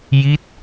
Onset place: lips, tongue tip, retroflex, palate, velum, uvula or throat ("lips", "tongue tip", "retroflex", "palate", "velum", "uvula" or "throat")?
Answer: palate